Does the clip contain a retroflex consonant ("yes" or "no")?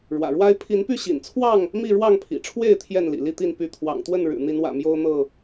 yes